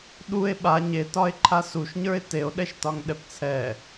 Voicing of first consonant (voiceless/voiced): voiced